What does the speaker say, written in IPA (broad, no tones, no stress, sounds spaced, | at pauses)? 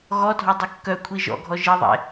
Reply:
ɣ ɔ dʱ ɔ dˤ ɨ kː œ kʷʰ i ʒ ɔ̰ ɡʱ ɔ ʒ i ðˤ ḛ